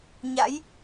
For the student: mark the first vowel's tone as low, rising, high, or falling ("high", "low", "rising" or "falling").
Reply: rising